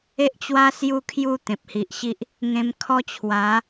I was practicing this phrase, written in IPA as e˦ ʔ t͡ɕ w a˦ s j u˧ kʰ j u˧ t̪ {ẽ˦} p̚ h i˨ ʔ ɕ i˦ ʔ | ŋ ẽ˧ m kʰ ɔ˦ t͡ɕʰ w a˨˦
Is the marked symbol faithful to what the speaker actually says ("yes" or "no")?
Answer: no